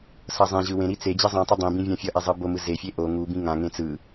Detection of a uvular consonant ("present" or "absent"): absent